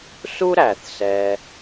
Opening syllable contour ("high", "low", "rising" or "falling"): high